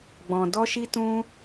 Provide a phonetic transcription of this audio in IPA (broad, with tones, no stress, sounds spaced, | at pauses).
ɡ͡b ɔ̃˧ d ɔ˦ ʃ i˦ t ũ˦